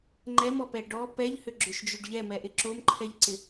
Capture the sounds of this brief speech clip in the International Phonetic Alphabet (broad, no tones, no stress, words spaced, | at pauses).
ŋ͡ǃɛmɔpɛ ɖɔ pɛʎhʏɡ͡ǁʏʃd͡ʒʏɖ ʎɛmɛʔɪ ǁomǃʰɛʎǀɪ